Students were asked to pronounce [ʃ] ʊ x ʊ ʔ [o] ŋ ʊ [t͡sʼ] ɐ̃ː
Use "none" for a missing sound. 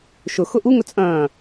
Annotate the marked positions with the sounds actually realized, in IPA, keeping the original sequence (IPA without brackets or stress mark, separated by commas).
ʃ, u, t͡sʼ